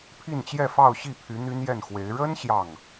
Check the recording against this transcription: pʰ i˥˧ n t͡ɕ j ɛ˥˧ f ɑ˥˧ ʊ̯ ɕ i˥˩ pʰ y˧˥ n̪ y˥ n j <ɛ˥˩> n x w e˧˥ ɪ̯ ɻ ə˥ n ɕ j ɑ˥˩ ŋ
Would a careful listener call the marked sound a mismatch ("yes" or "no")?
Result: no